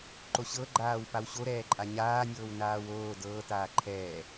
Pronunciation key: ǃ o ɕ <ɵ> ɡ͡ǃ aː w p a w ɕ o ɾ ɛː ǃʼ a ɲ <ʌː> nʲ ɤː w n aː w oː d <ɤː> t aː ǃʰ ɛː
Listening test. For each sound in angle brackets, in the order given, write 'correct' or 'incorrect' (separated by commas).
incorrect, incorrect, correct